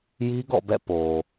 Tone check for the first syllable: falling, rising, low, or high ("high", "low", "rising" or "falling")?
high